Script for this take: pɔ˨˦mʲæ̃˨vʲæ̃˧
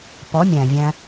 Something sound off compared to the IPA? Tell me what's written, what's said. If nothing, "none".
none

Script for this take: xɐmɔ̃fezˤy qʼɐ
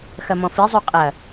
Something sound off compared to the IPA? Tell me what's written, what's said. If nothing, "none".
e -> i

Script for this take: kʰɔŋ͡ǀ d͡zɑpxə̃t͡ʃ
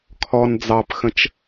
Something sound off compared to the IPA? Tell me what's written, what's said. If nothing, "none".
ŋ͡ǀ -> n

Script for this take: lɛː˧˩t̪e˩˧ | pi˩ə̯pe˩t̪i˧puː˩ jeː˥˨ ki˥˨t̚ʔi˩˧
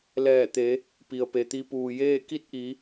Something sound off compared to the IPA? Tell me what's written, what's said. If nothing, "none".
none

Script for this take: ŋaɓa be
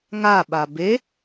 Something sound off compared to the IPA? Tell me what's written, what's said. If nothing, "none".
none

